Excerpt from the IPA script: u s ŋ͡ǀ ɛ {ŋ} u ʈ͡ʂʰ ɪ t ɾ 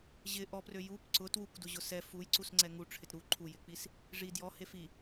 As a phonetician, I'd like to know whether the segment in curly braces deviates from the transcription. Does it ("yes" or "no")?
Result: no